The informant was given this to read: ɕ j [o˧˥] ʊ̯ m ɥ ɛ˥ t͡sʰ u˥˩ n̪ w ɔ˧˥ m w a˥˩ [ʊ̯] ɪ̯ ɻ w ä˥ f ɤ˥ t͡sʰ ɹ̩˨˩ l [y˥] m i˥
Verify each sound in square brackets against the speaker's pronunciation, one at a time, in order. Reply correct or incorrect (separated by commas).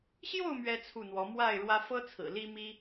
incorrect, incorrect, incorrect